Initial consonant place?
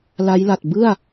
alveolar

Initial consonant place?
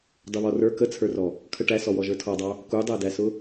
alveolar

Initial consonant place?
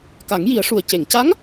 velar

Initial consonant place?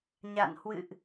palatal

